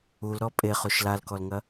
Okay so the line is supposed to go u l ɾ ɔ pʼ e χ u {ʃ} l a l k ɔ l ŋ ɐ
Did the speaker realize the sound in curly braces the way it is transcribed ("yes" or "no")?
yes